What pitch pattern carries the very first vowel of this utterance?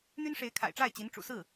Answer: high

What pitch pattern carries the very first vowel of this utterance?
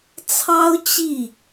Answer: high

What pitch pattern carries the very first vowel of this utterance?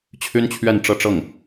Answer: high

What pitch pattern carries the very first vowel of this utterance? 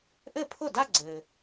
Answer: falling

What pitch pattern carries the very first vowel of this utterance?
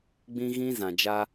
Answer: high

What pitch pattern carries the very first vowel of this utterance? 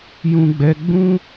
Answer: high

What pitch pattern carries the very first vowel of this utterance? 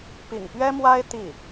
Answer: low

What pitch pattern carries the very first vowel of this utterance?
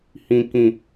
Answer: low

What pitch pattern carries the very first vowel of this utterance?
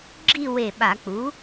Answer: falling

